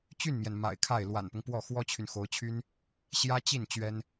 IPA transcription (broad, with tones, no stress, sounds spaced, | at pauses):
t͡ɕ y˥˩ n m j ɛ˩ n m a̰˨˩ ɪ̯ kʰ a˥˩ ɪ̯ l w a̰˨˩ n p ʊ˦ ŋ p w ɔ˥˩ x w ɔ˥ t͡ɕʰ y˨ n x o˧˥ ʊ̯ t͡ɕʰ y˥ n | ɕ j ä˥ t͡ɕ i˥˩ n t͡ɕ ɥ ɛ˥ n